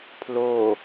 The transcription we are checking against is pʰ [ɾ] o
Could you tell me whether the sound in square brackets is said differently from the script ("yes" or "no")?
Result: yes